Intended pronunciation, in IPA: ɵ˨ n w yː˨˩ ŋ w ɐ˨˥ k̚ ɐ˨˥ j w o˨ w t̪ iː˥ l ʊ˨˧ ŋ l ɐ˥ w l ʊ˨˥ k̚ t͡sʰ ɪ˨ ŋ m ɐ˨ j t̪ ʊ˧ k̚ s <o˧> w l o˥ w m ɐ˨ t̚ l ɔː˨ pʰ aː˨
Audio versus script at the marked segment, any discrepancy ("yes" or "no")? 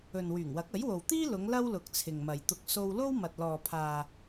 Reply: no